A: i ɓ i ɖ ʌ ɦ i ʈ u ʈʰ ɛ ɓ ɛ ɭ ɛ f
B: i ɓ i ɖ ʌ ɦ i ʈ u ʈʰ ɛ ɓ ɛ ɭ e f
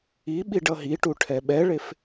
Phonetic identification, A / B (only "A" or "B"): B